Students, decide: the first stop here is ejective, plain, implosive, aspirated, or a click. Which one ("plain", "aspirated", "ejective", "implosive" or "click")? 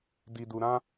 plain